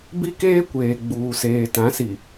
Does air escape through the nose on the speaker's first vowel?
no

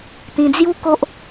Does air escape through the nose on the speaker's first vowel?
yes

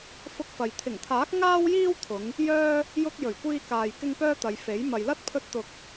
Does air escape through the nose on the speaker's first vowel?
no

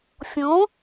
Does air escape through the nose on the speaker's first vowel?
yes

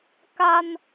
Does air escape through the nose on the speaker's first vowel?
no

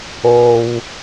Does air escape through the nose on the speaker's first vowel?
no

